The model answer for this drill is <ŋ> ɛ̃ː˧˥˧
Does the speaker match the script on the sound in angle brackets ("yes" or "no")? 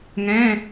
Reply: yes